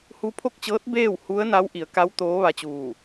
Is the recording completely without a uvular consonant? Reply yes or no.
yes